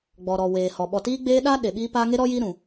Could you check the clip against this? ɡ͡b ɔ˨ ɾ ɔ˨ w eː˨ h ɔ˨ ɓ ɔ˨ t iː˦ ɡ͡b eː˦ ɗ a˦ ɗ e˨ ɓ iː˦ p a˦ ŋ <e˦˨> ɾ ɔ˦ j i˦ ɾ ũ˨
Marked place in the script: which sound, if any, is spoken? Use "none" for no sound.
e˦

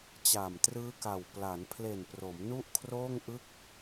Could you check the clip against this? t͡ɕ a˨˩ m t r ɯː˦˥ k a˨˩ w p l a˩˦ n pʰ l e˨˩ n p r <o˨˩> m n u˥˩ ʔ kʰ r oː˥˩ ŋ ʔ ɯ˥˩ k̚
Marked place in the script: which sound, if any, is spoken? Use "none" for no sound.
o˩˦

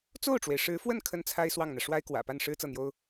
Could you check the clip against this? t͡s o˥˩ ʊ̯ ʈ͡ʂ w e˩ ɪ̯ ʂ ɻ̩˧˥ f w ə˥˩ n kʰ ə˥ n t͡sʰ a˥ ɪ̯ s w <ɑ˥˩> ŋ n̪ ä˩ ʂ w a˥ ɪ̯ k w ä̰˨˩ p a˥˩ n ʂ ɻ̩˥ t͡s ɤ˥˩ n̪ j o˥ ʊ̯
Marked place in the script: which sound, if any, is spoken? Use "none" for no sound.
ɑ˥˩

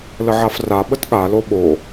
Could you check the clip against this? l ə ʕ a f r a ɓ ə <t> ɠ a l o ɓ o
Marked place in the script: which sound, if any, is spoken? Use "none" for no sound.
t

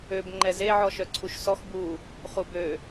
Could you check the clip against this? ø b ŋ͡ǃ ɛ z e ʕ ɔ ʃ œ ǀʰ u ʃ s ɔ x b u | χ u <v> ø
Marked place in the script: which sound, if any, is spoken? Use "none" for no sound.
b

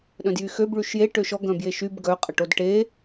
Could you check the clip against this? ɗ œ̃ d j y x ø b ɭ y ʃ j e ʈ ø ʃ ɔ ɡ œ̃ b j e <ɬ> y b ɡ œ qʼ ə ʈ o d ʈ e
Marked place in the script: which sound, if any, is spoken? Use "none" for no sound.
ʃ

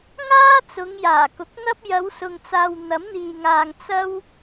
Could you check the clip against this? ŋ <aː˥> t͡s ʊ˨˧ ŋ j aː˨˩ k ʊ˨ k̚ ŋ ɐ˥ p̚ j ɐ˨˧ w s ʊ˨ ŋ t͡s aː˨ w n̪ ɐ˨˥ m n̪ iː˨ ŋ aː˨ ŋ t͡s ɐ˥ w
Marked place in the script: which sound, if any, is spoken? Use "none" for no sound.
aː˥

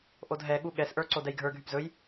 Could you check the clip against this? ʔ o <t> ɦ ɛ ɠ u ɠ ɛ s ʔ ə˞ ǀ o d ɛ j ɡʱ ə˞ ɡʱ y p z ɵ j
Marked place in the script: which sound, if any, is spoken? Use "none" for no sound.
d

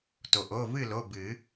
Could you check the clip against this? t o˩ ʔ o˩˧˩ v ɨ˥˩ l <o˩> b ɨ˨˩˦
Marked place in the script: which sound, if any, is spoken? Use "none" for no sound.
o˩˧˩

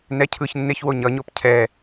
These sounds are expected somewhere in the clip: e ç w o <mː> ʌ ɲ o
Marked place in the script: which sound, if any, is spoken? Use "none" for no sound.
ɲ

